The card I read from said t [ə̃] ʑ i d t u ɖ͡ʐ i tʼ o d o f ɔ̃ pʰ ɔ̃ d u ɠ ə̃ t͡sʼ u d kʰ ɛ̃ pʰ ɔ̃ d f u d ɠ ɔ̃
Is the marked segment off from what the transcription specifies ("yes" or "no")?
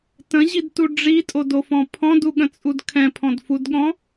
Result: no